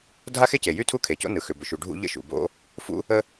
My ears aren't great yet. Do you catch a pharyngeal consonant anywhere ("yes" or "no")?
no